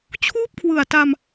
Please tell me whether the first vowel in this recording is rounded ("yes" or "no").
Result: yes